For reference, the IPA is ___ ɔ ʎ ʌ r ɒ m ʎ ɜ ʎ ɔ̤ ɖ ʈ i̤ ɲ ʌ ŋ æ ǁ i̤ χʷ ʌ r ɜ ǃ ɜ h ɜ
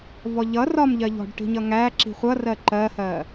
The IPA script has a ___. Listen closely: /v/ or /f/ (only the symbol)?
v